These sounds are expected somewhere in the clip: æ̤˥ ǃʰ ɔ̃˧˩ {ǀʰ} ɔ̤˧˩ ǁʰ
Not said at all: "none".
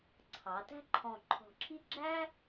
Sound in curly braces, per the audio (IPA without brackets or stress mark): ǃʰ